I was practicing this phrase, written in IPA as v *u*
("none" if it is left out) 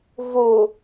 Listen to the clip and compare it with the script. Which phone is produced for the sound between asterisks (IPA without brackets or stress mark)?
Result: u